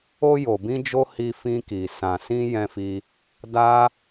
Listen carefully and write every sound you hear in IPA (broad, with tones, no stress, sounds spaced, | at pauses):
o˧ j o˨ b ĩ˧ d͡ʒ o˧ h i˧ f ĩ˧ k i˨ s ã˨ s ĩ˧ j ɛ̃˧ f i˧ | d a˦